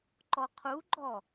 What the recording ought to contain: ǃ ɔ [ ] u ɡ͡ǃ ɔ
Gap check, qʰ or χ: qʰ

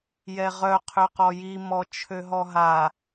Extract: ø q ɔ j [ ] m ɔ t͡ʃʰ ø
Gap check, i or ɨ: i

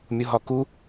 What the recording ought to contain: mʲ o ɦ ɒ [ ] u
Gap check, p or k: k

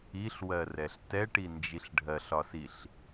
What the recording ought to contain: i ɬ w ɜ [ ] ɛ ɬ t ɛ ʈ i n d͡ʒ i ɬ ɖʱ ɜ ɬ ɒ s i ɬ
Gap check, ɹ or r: r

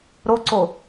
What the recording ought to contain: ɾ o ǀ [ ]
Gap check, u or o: o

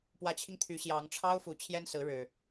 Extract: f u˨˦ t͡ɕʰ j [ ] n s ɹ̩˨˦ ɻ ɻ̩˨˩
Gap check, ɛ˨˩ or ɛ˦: ɛ˦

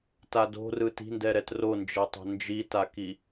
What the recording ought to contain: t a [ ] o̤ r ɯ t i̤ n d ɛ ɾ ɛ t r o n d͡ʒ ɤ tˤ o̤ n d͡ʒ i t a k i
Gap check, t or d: d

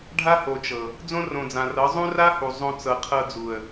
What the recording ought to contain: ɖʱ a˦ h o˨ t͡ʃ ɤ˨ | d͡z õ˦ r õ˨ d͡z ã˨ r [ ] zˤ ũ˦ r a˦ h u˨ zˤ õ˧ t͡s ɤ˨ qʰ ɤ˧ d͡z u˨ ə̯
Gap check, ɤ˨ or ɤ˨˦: ɤ˨˦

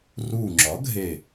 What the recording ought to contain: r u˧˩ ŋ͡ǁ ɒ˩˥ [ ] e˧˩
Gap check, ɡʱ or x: ɡʱ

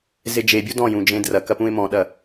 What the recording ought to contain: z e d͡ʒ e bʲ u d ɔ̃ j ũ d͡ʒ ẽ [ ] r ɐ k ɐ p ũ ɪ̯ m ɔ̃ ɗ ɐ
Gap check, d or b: d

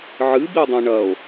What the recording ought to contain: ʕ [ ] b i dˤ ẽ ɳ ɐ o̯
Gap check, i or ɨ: ɨ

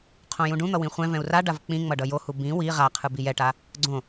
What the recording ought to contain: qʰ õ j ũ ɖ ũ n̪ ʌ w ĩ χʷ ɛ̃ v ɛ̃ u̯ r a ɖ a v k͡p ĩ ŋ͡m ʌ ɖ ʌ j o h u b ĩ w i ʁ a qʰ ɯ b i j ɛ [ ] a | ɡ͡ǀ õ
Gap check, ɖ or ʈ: ʈ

